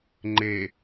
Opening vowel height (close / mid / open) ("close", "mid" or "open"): mid